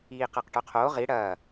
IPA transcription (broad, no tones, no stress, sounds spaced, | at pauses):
iː q ɐ q ʈ œ qʰ oː ʁ i ɽ ɐː